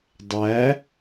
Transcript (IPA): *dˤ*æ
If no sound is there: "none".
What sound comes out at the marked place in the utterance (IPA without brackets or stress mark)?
dˤ